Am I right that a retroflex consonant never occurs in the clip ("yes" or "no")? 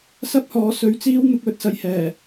yes